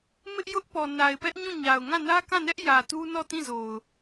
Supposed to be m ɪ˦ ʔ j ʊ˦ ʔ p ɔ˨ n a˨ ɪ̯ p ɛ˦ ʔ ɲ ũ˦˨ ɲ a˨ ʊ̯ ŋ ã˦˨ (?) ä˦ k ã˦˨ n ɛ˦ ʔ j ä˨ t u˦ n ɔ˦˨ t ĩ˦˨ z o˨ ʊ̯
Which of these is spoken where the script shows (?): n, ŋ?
n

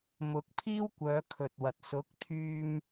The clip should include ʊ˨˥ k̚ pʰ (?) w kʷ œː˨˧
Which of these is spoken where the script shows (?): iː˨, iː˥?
iː˥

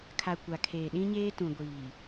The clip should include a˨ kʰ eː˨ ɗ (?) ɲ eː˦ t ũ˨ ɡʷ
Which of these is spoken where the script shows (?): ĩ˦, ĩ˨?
ĩ˦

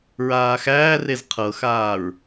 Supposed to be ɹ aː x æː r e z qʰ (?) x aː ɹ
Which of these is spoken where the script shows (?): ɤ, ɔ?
ɤ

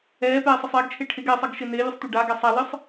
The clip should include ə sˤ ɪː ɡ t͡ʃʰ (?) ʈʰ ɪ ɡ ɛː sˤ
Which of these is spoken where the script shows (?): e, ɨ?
e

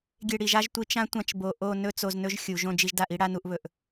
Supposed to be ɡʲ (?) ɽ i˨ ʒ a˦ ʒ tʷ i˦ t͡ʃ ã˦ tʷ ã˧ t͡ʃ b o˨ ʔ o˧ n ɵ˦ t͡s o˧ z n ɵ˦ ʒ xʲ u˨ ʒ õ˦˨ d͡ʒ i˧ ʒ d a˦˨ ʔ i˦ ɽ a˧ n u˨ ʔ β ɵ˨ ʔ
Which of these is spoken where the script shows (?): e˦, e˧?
e˧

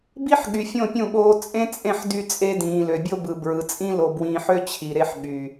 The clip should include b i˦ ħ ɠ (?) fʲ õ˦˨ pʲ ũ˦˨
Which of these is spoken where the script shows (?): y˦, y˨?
y˨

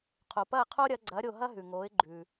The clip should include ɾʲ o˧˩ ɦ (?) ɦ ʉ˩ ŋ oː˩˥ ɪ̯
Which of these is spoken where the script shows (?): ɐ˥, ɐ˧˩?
ɐ˥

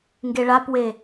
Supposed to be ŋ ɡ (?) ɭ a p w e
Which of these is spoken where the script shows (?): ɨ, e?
e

